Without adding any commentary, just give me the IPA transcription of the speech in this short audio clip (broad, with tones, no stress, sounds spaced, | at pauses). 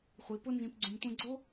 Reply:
χʷ i˩˧ p ʊ˥ n z ĩ˩˧ p ɡ͡ǀ ũ˩ m tʷ ɛ̃˧ ɡ͡ǀ o˥